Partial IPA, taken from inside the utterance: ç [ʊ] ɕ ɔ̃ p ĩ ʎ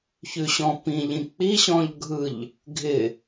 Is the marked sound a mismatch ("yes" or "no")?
yes